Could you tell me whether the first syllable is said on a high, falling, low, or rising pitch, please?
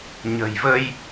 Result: low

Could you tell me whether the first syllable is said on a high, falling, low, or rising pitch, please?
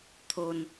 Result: low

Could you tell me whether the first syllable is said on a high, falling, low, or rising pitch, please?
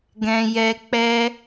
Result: high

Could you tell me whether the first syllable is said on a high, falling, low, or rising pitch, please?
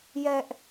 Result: high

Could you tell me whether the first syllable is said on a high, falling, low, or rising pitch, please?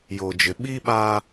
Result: low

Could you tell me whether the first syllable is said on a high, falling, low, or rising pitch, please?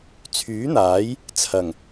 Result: rising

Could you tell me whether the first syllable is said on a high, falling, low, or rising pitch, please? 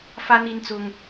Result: high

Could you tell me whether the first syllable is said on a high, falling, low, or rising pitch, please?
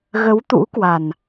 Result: rising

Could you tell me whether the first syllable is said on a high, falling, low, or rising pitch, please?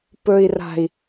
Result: low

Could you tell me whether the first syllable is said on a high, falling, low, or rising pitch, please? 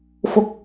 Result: rising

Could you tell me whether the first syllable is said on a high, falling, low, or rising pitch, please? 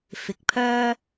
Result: rising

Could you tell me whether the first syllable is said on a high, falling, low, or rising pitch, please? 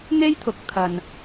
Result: high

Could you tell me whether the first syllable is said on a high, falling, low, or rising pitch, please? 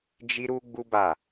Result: high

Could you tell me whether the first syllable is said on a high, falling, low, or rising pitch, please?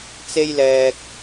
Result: high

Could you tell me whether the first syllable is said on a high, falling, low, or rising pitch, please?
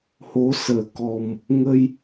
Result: rising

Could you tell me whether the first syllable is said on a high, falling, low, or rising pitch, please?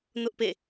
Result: high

